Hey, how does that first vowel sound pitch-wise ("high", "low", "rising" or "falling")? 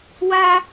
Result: high